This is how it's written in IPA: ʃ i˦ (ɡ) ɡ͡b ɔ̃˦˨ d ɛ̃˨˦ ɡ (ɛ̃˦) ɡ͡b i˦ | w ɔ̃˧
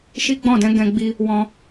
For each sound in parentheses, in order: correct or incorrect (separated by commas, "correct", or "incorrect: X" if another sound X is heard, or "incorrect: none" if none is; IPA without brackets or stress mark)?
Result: incorrect: none, incorrect: ɛ̃˧